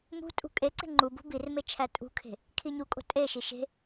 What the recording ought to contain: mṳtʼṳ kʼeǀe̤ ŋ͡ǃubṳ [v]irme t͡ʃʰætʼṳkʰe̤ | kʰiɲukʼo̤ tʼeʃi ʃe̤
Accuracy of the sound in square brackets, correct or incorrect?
incorrect